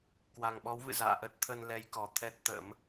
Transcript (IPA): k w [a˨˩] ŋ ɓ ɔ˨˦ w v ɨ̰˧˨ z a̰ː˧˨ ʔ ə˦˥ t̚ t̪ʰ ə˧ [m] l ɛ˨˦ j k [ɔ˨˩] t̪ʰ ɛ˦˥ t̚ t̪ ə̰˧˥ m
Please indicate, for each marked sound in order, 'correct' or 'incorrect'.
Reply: correct, incorrect, correct

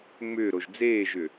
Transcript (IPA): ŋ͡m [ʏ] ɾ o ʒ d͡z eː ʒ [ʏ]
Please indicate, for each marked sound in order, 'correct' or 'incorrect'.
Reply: incorrect, correct

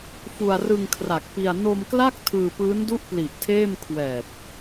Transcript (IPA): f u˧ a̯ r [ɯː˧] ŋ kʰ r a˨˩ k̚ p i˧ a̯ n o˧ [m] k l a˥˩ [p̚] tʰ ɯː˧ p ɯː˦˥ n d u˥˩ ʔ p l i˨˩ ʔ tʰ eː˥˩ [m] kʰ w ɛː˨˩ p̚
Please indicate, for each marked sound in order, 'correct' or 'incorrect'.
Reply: incorrect, correct, incorrect, correct

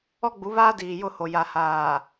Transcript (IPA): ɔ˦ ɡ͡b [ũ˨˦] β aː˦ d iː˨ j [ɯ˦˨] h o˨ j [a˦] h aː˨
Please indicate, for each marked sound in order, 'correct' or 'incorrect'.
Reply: incorrect, incorrect, incorrect

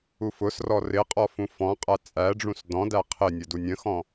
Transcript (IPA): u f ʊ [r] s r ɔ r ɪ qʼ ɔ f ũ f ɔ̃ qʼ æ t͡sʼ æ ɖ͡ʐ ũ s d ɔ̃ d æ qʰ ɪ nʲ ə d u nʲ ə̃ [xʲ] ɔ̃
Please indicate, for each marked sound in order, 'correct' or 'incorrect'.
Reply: incorrect, incorrect

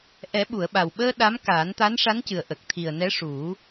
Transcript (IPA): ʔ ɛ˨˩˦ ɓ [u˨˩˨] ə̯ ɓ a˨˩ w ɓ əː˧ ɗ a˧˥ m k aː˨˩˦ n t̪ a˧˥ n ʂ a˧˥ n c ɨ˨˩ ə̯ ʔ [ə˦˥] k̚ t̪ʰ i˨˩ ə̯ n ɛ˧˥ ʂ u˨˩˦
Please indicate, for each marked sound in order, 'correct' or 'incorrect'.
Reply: correct, incorrect

